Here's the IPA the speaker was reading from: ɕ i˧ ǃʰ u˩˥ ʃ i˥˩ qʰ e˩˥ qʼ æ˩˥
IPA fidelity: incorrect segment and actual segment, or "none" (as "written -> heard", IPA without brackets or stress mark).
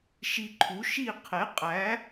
ɕ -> ʃ